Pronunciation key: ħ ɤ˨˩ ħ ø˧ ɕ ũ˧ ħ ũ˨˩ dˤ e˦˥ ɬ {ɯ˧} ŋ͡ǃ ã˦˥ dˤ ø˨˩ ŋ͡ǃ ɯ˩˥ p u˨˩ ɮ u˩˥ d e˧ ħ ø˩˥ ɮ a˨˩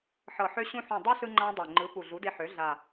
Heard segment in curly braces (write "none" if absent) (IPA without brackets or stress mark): ɯ˧